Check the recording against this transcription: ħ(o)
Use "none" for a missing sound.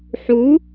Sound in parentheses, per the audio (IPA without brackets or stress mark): u